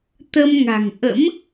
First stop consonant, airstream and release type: plain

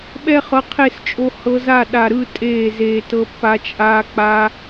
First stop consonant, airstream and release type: implosive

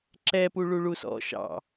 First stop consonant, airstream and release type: click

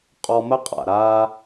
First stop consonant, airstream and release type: ejective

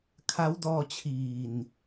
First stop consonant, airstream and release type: aspirated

